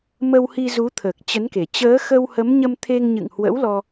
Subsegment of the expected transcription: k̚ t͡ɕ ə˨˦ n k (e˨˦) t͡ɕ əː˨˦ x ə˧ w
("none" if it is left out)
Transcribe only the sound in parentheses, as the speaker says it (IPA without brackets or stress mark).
e˨˩